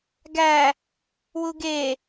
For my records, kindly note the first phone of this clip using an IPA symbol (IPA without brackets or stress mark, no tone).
ɡ